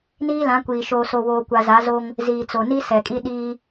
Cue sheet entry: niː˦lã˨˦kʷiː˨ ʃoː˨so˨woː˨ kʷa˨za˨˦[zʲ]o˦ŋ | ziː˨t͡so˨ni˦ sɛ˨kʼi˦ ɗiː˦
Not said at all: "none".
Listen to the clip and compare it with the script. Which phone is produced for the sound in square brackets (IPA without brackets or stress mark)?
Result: z